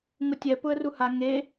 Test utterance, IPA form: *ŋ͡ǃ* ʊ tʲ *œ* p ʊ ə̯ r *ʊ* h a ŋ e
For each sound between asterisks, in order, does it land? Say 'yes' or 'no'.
no, no, no

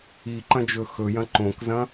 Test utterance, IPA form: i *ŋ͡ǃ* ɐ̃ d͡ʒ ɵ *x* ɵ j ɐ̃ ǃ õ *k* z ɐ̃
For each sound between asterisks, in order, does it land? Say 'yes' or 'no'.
no, yes, yes

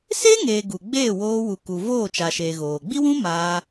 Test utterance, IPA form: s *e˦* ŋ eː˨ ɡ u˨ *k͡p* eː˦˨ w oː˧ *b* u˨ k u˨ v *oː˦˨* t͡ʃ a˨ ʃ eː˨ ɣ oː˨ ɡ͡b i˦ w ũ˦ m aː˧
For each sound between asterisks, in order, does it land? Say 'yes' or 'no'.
yes, no, no, yes

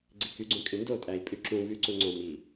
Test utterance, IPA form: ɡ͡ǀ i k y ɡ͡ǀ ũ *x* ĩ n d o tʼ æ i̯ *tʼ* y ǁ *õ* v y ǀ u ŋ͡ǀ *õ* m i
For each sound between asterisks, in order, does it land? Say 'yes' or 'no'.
no, no, no, yes

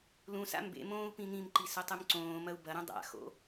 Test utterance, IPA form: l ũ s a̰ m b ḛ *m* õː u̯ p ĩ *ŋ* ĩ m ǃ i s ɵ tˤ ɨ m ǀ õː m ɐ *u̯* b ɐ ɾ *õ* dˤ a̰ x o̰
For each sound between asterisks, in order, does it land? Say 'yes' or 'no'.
yes, yes, yes, no

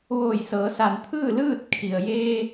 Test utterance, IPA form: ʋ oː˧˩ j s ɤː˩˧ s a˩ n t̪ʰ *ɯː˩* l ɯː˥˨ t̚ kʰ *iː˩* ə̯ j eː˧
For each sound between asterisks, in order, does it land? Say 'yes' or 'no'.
no, no

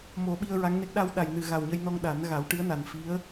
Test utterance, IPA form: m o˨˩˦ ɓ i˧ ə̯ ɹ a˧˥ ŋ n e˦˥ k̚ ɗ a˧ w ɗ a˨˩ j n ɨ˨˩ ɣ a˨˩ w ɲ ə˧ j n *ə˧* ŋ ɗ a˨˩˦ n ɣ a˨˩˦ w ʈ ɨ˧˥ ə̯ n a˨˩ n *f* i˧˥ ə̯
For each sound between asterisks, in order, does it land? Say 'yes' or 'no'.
no, yes

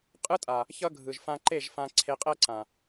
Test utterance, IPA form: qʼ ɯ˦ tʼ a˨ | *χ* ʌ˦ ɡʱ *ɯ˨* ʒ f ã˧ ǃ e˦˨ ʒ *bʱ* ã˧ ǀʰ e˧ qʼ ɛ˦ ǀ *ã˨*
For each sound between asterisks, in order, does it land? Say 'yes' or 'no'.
no, yes, no, yes

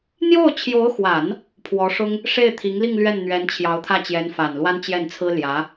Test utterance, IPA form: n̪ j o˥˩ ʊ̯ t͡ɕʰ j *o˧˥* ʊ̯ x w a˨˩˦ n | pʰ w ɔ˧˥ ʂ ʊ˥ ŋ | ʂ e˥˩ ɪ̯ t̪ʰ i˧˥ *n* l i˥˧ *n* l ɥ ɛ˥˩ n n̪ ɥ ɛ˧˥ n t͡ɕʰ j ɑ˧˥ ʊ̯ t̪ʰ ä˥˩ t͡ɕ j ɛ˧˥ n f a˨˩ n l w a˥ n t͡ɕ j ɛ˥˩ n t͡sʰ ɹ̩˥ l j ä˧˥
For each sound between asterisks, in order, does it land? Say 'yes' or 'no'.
yes, no, no

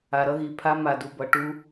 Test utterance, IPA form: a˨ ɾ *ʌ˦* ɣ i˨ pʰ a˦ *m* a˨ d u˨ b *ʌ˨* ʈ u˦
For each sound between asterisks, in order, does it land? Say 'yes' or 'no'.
yes, yes, yes

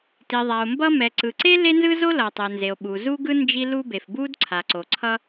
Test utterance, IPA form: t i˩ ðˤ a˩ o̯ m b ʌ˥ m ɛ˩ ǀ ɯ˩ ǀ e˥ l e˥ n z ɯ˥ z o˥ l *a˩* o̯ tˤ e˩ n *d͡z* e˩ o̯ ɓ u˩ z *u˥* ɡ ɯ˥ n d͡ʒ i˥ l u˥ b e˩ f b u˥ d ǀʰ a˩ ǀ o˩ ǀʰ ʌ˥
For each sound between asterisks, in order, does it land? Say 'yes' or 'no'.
no, no, yes

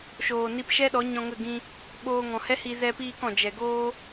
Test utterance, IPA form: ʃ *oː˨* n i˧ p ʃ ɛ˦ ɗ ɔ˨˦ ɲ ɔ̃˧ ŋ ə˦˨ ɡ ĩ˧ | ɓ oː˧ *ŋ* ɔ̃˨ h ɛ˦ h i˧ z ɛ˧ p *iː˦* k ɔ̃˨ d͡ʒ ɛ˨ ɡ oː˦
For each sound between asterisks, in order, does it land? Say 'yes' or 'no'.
yes, yes, no

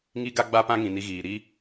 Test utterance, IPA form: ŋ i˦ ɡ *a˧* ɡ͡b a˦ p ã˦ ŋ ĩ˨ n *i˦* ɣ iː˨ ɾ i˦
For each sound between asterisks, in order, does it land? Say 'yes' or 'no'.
no, no

